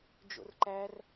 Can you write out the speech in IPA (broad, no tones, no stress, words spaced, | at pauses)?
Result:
d͡ʒo̰rǃær